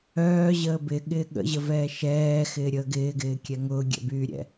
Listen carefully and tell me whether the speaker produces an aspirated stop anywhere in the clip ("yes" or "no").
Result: no